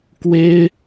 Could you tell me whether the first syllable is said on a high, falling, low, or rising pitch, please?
high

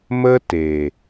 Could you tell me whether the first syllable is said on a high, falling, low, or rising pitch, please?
high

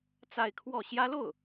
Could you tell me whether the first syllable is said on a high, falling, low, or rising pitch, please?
falling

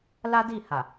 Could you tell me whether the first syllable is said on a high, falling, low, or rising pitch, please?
high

